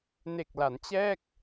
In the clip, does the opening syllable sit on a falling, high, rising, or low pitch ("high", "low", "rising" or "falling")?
low